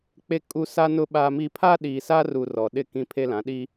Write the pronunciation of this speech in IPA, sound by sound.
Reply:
k͡pe˦kʼu˦ sa˦nʊ˦ ɓa˦mi˦ pʰa˦ɗiː˨sa˦ru˨ rɔ˨ɗɪ˦˨ kĩ˦pʰe˦lã˨˦ ɗi˦

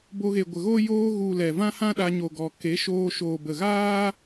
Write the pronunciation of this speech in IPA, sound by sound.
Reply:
bo˧ɣe˨ɡʷə˨ɣo˦ joː˧ɣu˨ lɛ˨vã˦hã˦ɗa˧ ɲo˨ɡɔ˨ ke˨˦ʃoː˧ ʃoː˨bə˨ɣaː˦

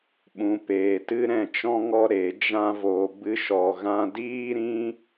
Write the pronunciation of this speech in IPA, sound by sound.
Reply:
ɓũ˨peː˨tɨ˦ ɾɛ̃˧t͡ʃɔ̃˦ŋɔ˦ ɾe˨˦d͡ʒã˦vo˧ bɨ˦ʃɔ˧ɣã˦ diː˦ɾĩ˦

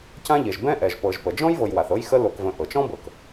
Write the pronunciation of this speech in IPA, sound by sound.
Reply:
cã˦ʎe˩ʒ bɛ̃˦ʔɛ˩ʒ pɤ˨ʒpə˩ d͡ʒɔ̃˥jvɤ˨jwa˩θ ɤ˦jxə˦ lo˨kvə̃˨ ʔɤ˩t͡ʃɔ̃˥bɤ˩k

